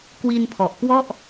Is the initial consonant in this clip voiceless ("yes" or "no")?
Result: yes